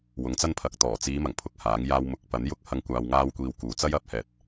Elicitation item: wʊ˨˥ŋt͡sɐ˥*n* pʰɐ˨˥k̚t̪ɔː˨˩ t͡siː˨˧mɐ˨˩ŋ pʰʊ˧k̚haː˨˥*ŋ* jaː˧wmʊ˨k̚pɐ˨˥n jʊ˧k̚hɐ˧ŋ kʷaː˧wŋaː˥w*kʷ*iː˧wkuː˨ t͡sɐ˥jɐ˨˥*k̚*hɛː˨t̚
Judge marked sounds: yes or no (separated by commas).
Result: yes, yes, yes, no